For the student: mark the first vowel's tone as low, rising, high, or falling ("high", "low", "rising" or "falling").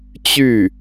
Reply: falling